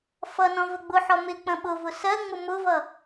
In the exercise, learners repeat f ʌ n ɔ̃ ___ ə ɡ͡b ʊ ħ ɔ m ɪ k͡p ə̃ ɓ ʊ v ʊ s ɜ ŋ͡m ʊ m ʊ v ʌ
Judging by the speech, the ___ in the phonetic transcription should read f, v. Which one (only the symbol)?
v